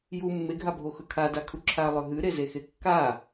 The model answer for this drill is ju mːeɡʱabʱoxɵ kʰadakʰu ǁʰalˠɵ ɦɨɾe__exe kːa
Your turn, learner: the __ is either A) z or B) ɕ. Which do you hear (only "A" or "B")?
A